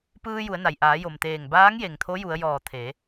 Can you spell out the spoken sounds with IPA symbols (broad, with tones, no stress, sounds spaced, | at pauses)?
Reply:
p ɯː˧ j u˩˧ ə̯ n a˩ j ʔ aː˩˧ j o˩ m t̪ eː˧˩ ŋ b aː˧˥ ŋ j e˩ ŋ t̪ʰ o˧˥ j u˩˧ ə̯ j ɔː˧˩ t̪ʰ e˩˧